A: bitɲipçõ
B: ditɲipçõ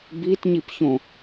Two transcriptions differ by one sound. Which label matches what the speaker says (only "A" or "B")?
A